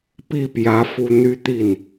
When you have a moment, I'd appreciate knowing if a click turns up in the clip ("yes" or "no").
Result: no